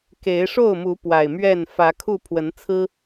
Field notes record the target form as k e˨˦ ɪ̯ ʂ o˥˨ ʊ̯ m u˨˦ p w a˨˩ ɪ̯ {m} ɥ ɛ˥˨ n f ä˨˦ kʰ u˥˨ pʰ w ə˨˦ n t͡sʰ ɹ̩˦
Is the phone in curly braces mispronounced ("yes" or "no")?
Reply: no